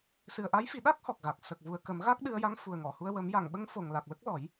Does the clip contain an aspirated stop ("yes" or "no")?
no